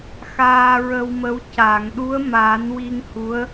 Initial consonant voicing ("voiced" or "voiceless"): voiceless